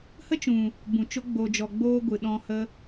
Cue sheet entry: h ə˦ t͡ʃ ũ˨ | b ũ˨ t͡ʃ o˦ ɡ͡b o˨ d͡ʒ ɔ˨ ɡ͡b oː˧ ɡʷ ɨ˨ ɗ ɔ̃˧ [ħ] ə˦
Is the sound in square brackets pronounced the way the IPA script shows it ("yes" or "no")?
no